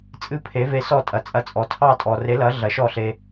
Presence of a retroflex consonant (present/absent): absent